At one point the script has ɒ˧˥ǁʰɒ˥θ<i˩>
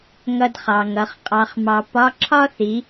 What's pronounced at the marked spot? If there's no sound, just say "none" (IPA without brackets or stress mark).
i˩˧